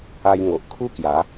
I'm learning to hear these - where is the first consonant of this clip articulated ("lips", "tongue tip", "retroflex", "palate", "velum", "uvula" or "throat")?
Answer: palate